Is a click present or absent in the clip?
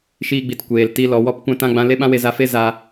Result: absent